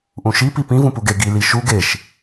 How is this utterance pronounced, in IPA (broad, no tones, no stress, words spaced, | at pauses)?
ʔũʃi pipĩ vũpuɡe ɡi liʃu ɡeʃ